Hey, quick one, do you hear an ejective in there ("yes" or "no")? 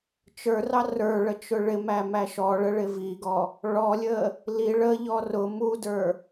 no